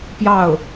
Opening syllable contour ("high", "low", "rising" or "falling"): falling